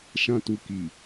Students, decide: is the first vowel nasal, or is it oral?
nasal